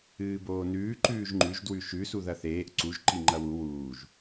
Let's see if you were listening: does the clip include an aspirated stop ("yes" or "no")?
no